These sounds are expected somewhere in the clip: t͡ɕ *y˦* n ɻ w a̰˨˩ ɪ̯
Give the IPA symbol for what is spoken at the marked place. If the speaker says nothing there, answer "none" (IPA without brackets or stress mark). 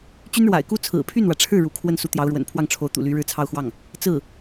y˥